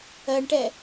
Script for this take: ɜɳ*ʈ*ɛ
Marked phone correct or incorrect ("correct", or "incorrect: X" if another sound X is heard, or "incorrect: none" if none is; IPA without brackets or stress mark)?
correct